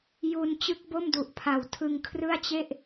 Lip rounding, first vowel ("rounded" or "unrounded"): rounded